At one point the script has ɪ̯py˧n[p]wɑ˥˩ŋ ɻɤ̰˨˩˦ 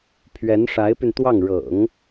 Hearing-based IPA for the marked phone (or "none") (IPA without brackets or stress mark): t̪